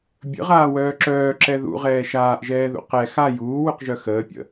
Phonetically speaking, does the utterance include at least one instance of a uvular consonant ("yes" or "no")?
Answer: yes